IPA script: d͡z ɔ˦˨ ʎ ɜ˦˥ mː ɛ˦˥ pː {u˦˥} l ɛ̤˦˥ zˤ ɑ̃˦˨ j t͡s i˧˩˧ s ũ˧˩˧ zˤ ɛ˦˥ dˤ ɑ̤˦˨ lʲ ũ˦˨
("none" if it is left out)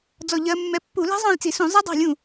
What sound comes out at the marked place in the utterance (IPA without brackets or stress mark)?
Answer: u˧˩˧